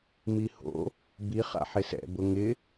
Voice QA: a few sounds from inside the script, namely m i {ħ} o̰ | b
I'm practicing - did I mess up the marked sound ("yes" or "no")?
yes